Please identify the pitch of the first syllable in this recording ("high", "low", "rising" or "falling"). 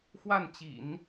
falling